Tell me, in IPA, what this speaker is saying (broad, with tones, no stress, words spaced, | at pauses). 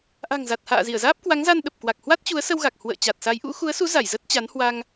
ʔa̤˨˩ŋza˨˩t̚ha̰ː˧˨zi˧˩ə̯ zaː˦˥p̚kwa˨˦ŋza˧n ɗə˨˩p̚kwa˨˩k̚ hwa˦˥t̚t͡ɕu˨˦ə̯ sə˧wɣa˨˩k̚ hwə̰ː˧˨ t͡ɕa˨˩t̚sa˨˦jʔṵ˧˥ xu˨˦ə̯su˨˦ za˧˩j zə˦˥t̚t͡ɕa˨˦n hwa˧ŋ